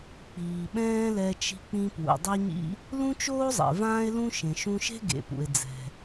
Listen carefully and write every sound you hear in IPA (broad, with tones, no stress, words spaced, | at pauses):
k͡piː˩ɓɛ̃ː˥lɛ˧ t͡ʃi̤˧k͡pĩ˧ pwṵ˩dˤɛ˥ɲḭ˥ | lũ˥t͡ʃoː˥zˤɛ̰˩ vãː˥e̯lũ˥ ʃẽ˩ʃũ˧ʃe̤˥ ɡḛ˩pṵ˩e̯ d͡zɛ̤˩